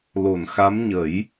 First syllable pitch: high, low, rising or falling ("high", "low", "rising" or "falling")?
low